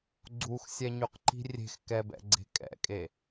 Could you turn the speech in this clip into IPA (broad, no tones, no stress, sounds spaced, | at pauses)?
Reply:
ɡ͡ǀ u x sʲ ɛ ɲ y q ǃ i̤ rʲ e̤ x k ɛ b ɛ̰ ɡ͡ǀ e̤ kʼ ɛ̰ kʼ e